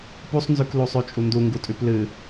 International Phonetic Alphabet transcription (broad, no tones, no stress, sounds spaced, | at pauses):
p u sˤ n z ʉ k l u sˤ ʉ t͡ʃʼ u n d u ŋ ɡ u tʼ ʉ p l ɨ